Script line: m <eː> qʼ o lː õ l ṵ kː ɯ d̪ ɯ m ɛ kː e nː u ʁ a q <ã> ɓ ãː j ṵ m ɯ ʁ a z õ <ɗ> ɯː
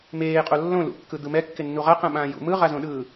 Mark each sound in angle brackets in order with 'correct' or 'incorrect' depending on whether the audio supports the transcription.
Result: correct, correct, correct

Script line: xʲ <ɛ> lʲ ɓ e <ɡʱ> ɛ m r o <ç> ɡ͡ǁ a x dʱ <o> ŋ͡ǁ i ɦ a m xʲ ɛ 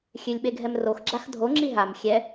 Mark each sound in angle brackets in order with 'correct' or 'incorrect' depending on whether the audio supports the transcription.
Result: incorrect, correct, incorrect, correct

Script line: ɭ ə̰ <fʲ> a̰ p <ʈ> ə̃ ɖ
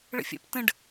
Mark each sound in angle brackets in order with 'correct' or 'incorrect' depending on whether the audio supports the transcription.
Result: correct, incorrect

